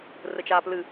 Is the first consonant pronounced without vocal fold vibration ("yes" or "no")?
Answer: no